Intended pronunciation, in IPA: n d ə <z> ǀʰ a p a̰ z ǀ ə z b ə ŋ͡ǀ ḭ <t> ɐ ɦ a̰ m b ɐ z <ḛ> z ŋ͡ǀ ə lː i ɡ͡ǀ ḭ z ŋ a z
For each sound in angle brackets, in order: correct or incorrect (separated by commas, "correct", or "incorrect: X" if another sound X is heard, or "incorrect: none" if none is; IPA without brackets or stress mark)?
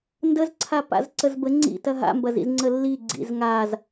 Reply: correct, correct, incorrect: ḭ